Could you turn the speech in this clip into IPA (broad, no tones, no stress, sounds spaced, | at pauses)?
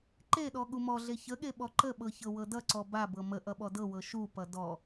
ǃ e ɗ ɔ ɠ u m ɔ ɮ e ç ə ɠ e ɓ ɔ ǃ ə ɓ ɤ ç ɤ w ɤ d ʌ ǀ ɔ b a b ɤ m ə ʔ ʌ ɓ ɔ d ɤ w ɤ ʃ u p ʌ d ɔ